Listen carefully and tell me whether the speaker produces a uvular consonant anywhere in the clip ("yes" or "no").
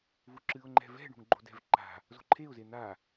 no